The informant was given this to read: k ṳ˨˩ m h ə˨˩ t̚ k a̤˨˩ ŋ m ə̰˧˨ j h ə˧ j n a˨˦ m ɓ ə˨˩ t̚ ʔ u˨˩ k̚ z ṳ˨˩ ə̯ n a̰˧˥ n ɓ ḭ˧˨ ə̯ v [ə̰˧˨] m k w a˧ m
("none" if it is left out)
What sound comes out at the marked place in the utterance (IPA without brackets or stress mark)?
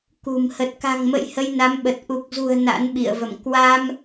ə̰˧˨